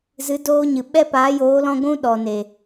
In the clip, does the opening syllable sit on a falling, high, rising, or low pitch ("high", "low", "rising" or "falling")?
rising